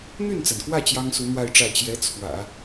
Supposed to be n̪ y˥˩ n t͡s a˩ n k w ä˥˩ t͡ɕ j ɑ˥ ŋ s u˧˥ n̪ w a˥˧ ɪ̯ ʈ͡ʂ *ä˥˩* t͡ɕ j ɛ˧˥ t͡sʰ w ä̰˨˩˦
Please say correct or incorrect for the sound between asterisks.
correct